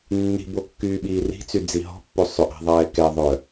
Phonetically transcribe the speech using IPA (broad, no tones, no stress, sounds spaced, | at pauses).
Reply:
nː i̤ b o kː yː ɓ iː r i̤ t͡s y d͡z i ɦ ɔ̤ pː o sˤ ø ʔ ɛ̤ ðˤ ɛː k ɛ ðˤ œ